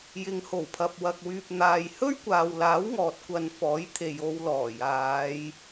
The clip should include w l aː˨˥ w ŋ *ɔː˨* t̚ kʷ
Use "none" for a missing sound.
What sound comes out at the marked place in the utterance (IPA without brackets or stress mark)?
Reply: ɔː˨